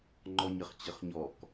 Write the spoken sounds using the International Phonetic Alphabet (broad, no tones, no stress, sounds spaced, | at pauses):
ŋ͡ǃ ɔ ɲ ə χ t͡ɕ ə χ ɲ ɔ k